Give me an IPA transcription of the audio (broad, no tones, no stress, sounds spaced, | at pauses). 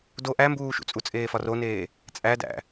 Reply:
d o ʔ æ m b uː ʃ ṵ t͡sʼ u t͡sʼ eː f ɒ r o n eː | t͡sʼ æ d æ̰